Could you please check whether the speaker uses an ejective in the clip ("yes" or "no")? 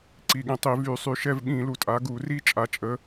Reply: yes